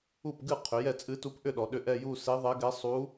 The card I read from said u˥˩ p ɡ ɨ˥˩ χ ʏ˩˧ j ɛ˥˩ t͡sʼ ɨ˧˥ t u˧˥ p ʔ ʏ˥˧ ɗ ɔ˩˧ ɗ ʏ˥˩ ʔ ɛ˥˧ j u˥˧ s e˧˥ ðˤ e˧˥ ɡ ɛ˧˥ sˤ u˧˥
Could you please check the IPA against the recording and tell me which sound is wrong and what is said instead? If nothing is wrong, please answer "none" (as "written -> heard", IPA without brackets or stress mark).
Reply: χ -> qʰ